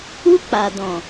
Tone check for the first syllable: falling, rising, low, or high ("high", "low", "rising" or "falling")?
high